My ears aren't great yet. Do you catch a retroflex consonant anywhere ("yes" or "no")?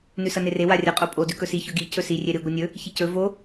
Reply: no